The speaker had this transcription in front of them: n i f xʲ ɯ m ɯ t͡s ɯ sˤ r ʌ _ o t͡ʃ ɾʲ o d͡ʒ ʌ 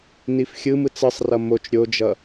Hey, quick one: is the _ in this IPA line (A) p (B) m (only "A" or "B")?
B